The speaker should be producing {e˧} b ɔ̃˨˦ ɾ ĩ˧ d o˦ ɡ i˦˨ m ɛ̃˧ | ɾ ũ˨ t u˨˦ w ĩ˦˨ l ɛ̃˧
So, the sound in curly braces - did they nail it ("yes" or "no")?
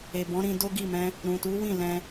no